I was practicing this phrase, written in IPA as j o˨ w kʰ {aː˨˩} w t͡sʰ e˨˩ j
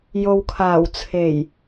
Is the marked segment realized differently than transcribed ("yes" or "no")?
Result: no